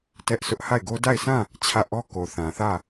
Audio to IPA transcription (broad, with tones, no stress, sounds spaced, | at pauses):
t ɛ˦ ʔ s ʊ˦ ʔ h a˦˨ ɪ̯ ɡ o˦ d a˦˨ ɪ̯ sʰ ã˦˨ | t͡ɕʰ ä˦˨ ʔ ɔ˦ k o˨ θ ã˨ θ ä˦˨